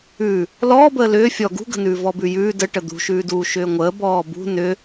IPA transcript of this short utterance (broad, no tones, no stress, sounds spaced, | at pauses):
ʉ | l ɔː b əː l ʏː fʲ ɔ ɡ ṳ ɡ ə̤ n ʉː v ɔ b ʉ j ʉː d ə ʈ ə d̪ ṳ ʃ ʉː d uː ʃ ʏː ŋʷ əː b ɔː b ṳ n ʏ